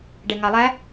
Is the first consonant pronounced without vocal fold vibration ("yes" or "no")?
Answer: no